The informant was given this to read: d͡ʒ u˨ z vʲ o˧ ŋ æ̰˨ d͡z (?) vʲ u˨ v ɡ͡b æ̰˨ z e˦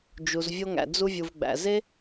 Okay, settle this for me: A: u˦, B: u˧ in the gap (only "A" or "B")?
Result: B